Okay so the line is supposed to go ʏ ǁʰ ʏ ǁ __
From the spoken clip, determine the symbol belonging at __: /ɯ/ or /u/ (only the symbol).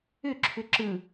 ɯ